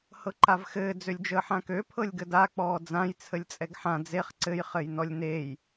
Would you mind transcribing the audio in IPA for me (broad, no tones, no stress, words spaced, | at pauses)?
hɤǃavxɘː d͡zølʲd͡ʒəːħãkø pʰɤlʲɡəda k͡pɔːd͡zãj t͡sʰəlʲt͡sʼɛɡħã d͡zeχ ǀɘj χɘjnɔlʲnej